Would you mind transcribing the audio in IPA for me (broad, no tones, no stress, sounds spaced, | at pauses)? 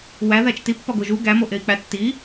w æ ð æ t͡ʃ t i pː ɒ ɡ o ʒ u ɡ æ m o ʔ e i̯ k͡p æ tː i